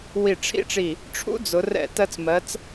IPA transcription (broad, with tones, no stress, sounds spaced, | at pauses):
w i˧˩ ʈ͡ʂʰ ḭ˥ ʈ͡ʂ i˧˩ | ʈ͡ʂʰ ṵ˥ d͡z ʊ˩˧ r ɛ̰˧˩ t ɜ˧ t͡s m ɜ˩˧ t͡s